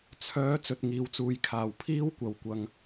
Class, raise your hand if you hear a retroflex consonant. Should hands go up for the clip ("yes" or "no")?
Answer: no